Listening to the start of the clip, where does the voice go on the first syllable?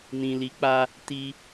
low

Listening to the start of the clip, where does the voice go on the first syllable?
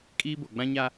high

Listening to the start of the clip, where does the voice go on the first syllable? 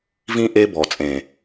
high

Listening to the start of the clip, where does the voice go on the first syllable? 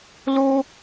high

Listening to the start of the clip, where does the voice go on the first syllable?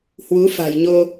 rising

